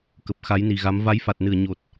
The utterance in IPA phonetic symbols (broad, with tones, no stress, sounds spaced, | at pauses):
k ə˨˩ p̚ x a˨˦ j n i˨˩ ɣ a˨˦ m v a˨˦ j f a˨˩ t̚ n ɨ˧˩ ə̯ ɲ o˨˩ t̚